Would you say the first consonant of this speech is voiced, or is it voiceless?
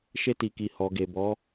voiceless